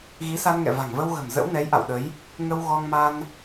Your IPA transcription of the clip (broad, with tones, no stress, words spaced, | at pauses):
ɣi˨˦sa˧nŋɛ̰˧˨ va̤˨˩ŋvə˧wɣə̤˨˩m zə̰˧˥wnɛ˨˦jʔa̰˧˨wɗə˨˦j | ŋə˧w ɣɔ˧ŋ ma˧n